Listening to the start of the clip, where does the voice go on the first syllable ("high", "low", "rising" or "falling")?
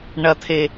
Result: low